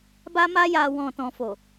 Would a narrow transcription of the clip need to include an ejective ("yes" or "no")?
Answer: no